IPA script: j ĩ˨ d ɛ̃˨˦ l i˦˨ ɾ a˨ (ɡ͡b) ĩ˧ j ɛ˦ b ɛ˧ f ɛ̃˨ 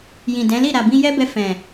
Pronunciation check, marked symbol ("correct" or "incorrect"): incorrect